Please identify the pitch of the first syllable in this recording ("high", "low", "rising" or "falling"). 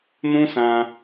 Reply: high